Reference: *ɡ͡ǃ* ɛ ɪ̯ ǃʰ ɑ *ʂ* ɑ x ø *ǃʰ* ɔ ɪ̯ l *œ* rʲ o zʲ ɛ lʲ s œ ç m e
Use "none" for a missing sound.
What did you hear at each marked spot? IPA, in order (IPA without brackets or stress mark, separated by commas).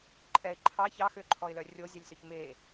ǃʼ, ç, ǃʰ, œ